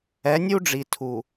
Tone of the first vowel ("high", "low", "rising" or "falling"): rising